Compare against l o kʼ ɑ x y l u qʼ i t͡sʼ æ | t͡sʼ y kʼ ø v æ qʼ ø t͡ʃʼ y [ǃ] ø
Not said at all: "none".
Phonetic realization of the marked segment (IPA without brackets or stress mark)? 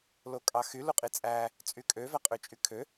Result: kʰ